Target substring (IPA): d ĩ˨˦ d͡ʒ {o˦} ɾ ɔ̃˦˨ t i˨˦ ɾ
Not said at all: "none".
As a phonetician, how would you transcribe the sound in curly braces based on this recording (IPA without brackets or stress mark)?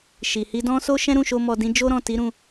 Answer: o˦